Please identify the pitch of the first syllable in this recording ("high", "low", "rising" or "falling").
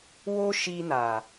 high